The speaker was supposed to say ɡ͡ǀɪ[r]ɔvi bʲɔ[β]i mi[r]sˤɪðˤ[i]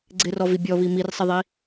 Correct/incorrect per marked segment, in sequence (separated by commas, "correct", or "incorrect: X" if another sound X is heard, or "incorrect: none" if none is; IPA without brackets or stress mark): correct, correct, correct, correct